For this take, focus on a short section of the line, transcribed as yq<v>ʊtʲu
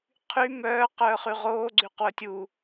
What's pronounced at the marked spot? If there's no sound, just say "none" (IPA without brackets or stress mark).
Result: w